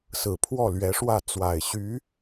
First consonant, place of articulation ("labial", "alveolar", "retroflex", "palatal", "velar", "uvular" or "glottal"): alveolar